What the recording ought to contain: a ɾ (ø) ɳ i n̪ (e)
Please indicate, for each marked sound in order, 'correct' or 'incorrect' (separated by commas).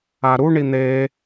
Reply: incorrect, correct